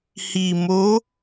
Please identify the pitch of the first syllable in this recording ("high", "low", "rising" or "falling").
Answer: low